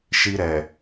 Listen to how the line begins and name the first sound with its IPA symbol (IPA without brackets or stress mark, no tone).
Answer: ʃ